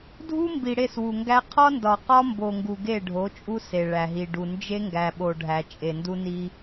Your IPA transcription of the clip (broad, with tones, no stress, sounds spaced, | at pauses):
dʱ u˦ m b i˨ ɽ e˦˨ s w u˨ ŋ ɡ æ˦ qʰ ɒ˦ n d ɒ˨ q ɒ˦ m b o˨ ŋ ɡ u˨ ɡ e˦˨ ɖʱ o˨˦ t͡ʃʼ u˦ s e˨ ɭ æ˨ ɦ i˨ ɖ u˨ n d͡ʒ e˦ ŋ ɡ æ˨ ɓ o˨ ɖʱ æ˨ t͡ʃʼ e˨ n d u˦ n i˦